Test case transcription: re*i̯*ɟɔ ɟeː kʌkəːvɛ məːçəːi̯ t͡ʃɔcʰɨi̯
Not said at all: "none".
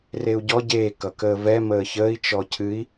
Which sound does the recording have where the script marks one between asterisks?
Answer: u̯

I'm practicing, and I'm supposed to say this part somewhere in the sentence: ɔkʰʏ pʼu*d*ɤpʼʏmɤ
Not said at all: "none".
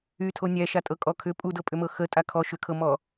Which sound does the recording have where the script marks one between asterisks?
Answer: d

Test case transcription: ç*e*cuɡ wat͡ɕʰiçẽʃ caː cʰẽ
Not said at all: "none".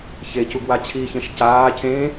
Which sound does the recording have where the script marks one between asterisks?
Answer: e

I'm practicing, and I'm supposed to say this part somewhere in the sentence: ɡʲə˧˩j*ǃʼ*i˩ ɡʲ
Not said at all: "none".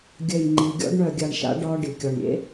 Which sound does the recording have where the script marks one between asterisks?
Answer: ŋ͡ǃ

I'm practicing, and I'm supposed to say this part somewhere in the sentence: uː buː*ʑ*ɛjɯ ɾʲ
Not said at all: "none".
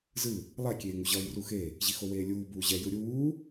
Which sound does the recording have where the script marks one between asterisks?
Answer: ʑ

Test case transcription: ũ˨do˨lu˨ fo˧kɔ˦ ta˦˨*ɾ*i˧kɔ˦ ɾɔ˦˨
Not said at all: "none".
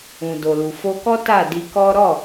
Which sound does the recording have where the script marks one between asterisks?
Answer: d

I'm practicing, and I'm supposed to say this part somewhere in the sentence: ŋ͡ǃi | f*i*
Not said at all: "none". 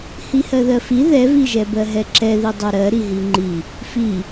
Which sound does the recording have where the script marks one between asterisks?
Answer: i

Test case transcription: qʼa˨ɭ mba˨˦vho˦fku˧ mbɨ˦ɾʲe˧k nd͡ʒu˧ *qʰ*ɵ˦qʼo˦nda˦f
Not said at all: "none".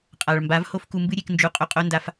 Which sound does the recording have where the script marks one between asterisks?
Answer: qʼ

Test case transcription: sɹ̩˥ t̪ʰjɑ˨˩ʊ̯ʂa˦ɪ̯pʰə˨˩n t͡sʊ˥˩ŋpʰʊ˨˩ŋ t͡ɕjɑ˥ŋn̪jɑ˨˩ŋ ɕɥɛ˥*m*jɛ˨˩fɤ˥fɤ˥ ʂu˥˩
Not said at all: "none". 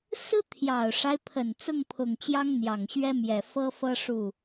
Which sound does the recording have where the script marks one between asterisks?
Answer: m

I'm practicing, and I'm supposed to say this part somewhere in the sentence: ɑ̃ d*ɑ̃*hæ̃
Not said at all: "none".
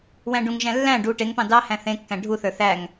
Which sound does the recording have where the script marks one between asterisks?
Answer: ɑ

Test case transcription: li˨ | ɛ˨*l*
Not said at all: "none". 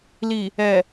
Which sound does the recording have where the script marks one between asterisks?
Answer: none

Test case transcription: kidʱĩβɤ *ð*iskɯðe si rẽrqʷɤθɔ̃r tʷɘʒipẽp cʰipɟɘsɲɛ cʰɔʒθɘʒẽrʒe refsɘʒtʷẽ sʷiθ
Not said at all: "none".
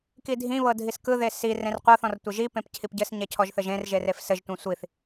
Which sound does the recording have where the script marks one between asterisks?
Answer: dʱ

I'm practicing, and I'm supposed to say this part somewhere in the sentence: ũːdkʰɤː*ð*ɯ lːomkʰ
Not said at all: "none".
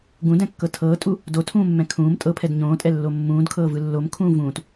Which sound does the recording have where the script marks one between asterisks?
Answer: v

